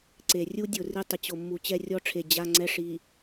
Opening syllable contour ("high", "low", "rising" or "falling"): low